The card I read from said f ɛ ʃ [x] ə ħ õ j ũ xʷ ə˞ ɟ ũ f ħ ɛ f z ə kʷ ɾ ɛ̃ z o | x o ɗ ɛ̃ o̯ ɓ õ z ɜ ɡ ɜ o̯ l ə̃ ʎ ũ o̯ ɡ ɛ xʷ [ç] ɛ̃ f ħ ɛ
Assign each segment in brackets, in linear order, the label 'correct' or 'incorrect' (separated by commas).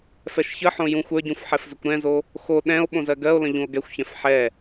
incorrect, correct